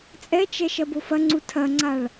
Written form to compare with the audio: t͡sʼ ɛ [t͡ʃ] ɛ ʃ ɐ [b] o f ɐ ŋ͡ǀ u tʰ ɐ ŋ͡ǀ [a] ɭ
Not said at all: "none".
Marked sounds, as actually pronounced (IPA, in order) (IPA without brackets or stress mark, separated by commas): t͡ʃ, b, a